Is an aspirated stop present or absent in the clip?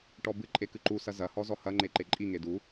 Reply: absent